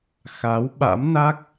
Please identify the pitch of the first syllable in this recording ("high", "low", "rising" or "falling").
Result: rising